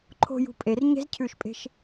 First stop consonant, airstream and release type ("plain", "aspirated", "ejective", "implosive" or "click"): click